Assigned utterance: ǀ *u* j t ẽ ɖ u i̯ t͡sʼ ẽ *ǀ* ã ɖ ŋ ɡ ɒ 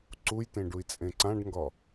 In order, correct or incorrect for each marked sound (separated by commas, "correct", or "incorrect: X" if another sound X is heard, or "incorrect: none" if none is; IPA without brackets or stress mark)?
correct, correct